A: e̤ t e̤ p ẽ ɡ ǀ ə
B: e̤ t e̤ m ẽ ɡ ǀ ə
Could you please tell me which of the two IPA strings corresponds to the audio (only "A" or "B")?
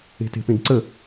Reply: A